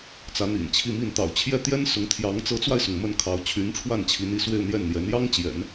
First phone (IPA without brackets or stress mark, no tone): t͡s